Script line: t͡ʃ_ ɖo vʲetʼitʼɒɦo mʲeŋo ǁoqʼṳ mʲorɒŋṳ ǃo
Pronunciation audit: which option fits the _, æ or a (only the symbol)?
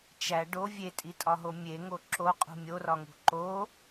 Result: æ